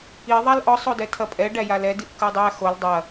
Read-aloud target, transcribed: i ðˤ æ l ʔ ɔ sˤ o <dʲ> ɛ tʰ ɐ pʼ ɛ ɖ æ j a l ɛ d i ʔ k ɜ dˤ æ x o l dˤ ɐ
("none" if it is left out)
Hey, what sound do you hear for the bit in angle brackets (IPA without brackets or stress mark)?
d